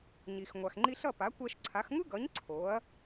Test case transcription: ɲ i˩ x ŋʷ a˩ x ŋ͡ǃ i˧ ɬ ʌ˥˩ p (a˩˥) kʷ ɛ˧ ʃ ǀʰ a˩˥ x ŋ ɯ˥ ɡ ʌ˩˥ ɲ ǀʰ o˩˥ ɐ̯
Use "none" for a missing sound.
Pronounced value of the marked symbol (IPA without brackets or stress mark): a˩˥